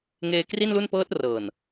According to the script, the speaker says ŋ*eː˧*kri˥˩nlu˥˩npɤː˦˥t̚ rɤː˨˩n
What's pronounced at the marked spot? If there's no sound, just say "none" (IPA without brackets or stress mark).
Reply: eː˧